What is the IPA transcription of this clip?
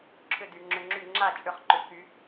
ǁʰ ʏ˥˧ d y˩˧ ŋ͡ǁ ʏ˧ ŋ͡ǁ y˥˩ ŋ͡ǁ a˥˩ t͡ʃʼ ʏ˧ χ ǃ ʏ˩˧ k y˩˧

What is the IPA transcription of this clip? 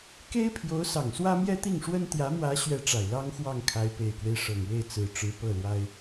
k e˥ ɪ̯ pʰ j o˧˥ ʊ̯ s ɑ˨˩ ŋ s w ä˥ m j ɛ˥ t̪ i˥˩ ŋ ʂ w ə˥ n t̪ j ä˧˥ m w ä˧˥ ɕ ɥ ɛ˧˥ ʈ͡ʂ a˨˩ ɪ̯ l ɑ˥ ŋ x w ɑ˥˩ ŋ kʰ a˧˥ ɪ̯ p e˨˩ ɪ̯ k w e˦ ɪ̯ ʂ ɤ˨˩ ŋ w e˥˩ ɪ̯ t͡s ɹ̩˨˩ ʈ͡ʂ ɻ̩˧˥ p ɤ˥˩ l w a˥ ɪ̯

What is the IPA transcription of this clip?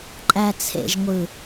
ǃʼ æ t͡sʰ ḛ ʒ ŋʷ ɯ

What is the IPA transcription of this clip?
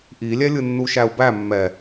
ʔ i lʲ ɛ lʲ ɯ nː u ʃ æ u̯ b æ mː ɛ

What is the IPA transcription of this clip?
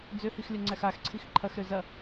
d͡z ø h i x lʲ ɐ ŋ͡ǀ æ x a x ǀʰ i x ǃʰ ɐ x ɾ ø z ɐ

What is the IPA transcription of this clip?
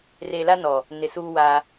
r e˨ l a˦ n ɔ˨ | n ɪ˨ s uː˦ w aː˦

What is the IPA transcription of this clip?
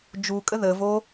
d͡ʒ u kʼ ə ð ə v o

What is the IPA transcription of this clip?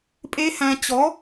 pʼ e˦˥ h æ̃˧ t͡ɕ ɔ˨˥

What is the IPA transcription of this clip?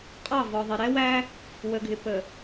qʼ ɑ˦˨ v ɔ˨ ðˤ ɪ˨ ɾ ɛ˦ w æ˦ | w ə˨ ɡʱ ɪ˨ p ə˨

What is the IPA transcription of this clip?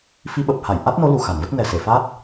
f i˧ ɓ ə˨˩ p̚ h a˧˩ j ʔ a˦˥ t̚ n o˨˦ l u˨˩ x a˧˩ n v ə˦˥ t̚ n ɛ˨˩ s e˧˩ f a˦˥ t̚

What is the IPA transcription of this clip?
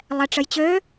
lˠ ɛ ʈ͡ʂ ə j t͡ɕ ø

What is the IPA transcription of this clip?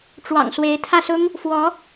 ʈ͡ʂ w ɑ̰˨˩ ŋ s w e˧˥ ɪ̯ t̪ʰ ä˥˩ s ʊ˥ ŋ | f w ɔ˧˥

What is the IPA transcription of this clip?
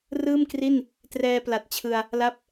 r ɯː˥˩ m k r i˥˩ n | t r ɛː˧ p l a˨˩ t̚ t͡ɕʰ ɯ˧ a̯ | l a˦˥ p̚

